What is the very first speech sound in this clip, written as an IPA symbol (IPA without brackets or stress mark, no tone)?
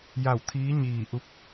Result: j